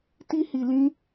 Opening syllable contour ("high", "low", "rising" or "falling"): high